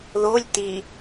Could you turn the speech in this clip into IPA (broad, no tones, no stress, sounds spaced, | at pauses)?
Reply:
ð o lʲ t i